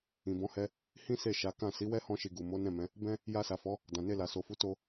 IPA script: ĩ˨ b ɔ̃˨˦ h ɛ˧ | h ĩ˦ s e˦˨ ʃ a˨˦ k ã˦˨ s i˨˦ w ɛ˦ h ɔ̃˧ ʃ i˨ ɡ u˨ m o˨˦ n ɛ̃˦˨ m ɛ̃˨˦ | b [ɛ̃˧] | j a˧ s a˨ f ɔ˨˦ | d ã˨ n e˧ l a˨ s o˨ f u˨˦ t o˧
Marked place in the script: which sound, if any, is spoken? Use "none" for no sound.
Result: ɛ̃˧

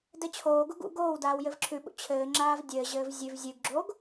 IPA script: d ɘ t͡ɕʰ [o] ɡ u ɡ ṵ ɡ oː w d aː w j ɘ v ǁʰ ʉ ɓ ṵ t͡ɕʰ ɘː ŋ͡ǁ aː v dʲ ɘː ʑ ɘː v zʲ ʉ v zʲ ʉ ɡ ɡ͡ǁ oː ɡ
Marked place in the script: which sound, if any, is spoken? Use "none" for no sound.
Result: oː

